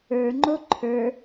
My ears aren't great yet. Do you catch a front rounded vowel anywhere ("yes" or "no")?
no